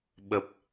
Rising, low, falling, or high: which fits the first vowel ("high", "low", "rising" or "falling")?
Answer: low